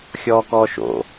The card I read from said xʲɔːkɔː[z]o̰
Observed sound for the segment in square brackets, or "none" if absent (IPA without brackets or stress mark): ʃ